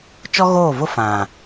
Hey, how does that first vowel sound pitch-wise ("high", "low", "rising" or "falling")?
high